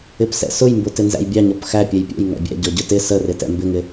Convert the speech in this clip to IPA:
ɪ p s ɛ̰ s ʊ j m b ʊ t ɪ n z æ̰ j bʲ ɑ ɲ ɔ p x æ pʲ ɛ j pʲ ɛ̰ j ŋ æ̰ bʲ æ̰ ɟ ɔ ɟ ʊ t ɪ s ə r ɪ t ɛ̰ m b ɪ ŋ ɪ

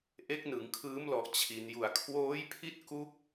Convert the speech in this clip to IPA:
ʔ e˦˥ k̚ n ɯ˩˦ ŋ kʰ ɯː˦˥ m l ɔ˨˩ ʔ t͡ɕʰ i˩˦ n j u˨˩ a̯ kʰ w oː˦˥ j pʰ i˥˩ t̚ k u˦˥ k̚

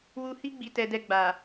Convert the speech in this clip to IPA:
w u˦ h i˦ ɡ͡b i˧ t ɛ˧ d ɛ˧ ɡ͡b a˨

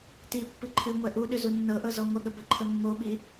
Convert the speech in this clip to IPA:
t i pː ɨ ǃʰ ɨ ŋʷ ɛ ʔ u ɗ ʏ z u nː ɤ ʔ ɤ z ɔ ŋʷ ə ɠ ə b ə ǃʰ ə mː o ɓ i

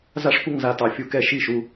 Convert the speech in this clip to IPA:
z a˦ ʂ kʷ ə˥˨ ŋ z a˥˨ t ɑ˦ fʲ u˦ k ɛ˦ ʃ i˥˨ ʃ u˦

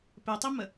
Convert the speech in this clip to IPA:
p e tˤ i m ə

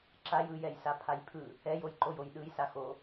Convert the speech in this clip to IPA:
ǁ a j ɯ j ɛ j s a pʰ a j pʰ ɯ | ɛ j o j ǃ o j o j ɗ ɯ j s a x o

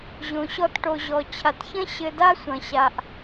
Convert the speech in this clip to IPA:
ʑ õ˩ ɕ ɔ˧ t ʈ o˩ ʑ ɔ˩ t͡ɕʰ a˩ t ç ɐ̃˥ ɕ ɘ˧ d a˥ sʷ ɐ̃˩ ɕ a˩ ʔ

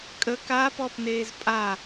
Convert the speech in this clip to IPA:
kʼ ə k aː p ɔ p n eː z pʼ a

